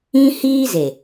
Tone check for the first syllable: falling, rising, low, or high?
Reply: high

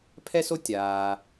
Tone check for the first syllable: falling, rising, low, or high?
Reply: high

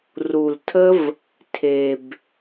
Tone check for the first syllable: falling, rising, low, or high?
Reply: low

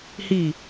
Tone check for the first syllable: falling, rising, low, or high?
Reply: falling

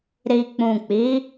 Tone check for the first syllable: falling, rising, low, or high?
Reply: low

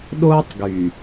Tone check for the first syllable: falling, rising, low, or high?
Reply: high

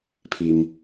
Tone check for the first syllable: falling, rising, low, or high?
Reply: low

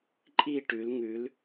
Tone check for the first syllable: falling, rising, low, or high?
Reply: falling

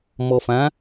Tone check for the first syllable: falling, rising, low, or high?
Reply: low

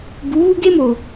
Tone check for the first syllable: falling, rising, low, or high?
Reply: rising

